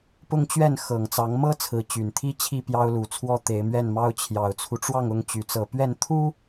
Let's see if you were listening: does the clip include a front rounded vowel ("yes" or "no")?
yes